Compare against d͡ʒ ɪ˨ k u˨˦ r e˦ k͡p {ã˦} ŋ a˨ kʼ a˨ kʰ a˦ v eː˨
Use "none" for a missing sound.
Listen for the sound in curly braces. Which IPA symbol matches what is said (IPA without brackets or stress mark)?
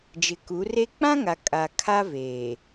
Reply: ã˦